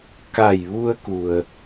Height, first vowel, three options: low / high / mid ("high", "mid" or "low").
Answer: low